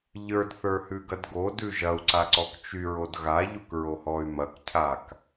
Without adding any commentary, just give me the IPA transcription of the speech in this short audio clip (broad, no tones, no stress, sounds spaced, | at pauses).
ʎ ə˞ d θ ə˞ h ʉ ɡ ɐ d ɡ o d ʉ ʒ ɐ u̯ ǀ a ǀ ɔ k t͡ʃ y ɹ o d ɣ a ʎ u k ɹ o h ɔ y̯ m ɐ k cʰ a k